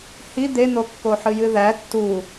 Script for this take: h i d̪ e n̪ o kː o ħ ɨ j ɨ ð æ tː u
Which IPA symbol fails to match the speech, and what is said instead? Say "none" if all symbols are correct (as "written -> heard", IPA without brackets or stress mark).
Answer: none